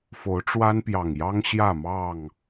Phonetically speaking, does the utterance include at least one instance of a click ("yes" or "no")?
no